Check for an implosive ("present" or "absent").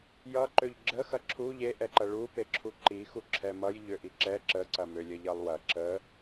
absent